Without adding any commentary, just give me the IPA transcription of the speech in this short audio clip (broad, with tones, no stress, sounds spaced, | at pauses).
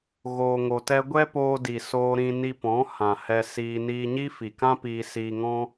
ɣ oː˧ ŋ o˧ t ɛ˦ ɡʷ ɛ˦ p oː˧ d i˨ s oː˧ ɾ ĩ˧ n i˧ p ɔ̃˨˦ h ã˨ h ɛ˧ s iː˧ n iː˧ ɲ i˦ f i˨ k ã˦ p iː˧ s iː˧ ŋ ɔ̃˦